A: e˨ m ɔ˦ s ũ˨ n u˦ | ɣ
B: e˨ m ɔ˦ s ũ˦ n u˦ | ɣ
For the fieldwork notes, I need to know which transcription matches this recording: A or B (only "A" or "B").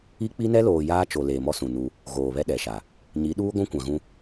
A